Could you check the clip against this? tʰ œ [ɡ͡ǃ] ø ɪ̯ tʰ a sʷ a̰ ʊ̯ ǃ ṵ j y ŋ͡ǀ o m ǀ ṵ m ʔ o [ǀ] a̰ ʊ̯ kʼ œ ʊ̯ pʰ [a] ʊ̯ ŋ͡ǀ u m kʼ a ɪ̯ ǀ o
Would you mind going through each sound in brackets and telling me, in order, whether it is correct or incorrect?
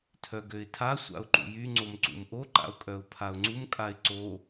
incorrect: ɡ, incorrect: ǃ, correct

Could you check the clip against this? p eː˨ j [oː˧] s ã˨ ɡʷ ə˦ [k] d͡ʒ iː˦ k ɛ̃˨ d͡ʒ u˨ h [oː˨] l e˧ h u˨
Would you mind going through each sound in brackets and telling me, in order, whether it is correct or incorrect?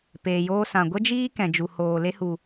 correct, incorrect: none, correct

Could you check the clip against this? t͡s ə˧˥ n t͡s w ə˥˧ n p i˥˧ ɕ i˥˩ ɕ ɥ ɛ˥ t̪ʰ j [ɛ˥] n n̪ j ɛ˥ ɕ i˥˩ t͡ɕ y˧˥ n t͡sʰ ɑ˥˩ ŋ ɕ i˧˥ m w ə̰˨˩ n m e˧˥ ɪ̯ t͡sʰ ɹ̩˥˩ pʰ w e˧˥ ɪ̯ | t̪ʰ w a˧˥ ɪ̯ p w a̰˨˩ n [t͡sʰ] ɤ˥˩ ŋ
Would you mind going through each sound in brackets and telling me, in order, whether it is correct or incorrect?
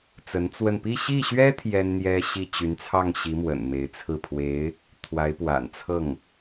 correct, correct

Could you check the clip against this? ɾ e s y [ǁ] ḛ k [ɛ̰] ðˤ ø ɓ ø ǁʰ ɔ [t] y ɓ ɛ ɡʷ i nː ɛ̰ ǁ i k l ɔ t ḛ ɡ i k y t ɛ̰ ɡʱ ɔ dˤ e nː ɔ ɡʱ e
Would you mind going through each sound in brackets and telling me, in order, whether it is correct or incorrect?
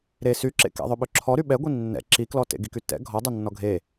correct, correct, incorrect: ɾ

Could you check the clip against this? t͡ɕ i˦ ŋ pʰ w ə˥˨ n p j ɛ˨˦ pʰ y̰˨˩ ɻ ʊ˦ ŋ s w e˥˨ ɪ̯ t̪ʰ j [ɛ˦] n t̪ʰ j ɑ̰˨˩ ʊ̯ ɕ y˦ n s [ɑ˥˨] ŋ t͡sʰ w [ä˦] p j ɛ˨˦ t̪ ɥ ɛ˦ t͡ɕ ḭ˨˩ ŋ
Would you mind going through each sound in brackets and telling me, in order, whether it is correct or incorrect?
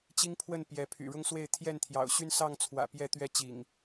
incorrect: ɛ˥˨, correct, incorrect: ä̰˨˩

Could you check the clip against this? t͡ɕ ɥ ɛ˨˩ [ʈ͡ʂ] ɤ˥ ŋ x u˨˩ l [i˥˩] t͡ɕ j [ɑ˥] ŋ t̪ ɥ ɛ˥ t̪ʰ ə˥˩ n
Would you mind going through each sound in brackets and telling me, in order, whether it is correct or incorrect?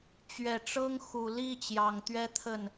correct, correct, incorrect: ɑ˨˩

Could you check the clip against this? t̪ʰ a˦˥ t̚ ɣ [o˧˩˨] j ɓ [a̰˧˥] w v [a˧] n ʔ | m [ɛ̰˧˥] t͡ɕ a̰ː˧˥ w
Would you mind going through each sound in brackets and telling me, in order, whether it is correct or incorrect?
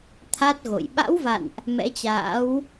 incorrect: o̰˧˨, correct, incorrect: a̰˧˨, correct

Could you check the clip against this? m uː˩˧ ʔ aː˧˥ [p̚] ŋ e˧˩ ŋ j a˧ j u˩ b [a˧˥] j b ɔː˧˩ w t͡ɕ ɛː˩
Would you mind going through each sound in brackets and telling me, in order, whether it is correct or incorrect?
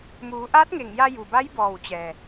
incorrect: t̚, correct

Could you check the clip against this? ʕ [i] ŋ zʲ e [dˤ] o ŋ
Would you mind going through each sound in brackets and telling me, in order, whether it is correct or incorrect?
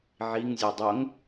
correct, correct

